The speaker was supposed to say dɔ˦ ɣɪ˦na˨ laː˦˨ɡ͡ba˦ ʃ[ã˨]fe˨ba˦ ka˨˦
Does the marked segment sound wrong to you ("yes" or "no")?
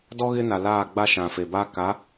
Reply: no